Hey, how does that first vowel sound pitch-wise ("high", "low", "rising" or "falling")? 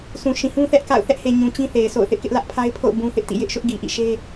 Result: low